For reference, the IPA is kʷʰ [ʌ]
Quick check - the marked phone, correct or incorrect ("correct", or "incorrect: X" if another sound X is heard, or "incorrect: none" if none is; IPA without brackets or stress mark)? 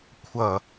correct